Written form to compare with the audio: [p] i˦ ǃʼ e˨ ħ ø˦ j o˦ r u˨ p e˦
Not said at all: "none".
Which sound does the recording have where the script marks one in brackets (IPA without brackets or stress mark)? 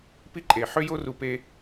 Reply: p